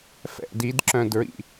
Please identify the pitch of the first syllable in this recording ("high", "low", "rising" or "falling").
falling